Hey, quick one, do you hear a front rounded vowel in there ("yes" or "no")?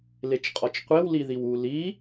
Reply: no